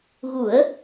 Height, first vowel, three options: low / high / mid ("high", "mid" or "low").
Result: high